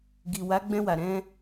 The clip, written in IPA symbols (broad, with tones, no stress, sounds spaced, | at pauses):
ɡ i˨ w a˨˦ ɡ͡b ɛ̃˧ w a˨ ɾ ɛ̃˧